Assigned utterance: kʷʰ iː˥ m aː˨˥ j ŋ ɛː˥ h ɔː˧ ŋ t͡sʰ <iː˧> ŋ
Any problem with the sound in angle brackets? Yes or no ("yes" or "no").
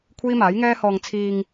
no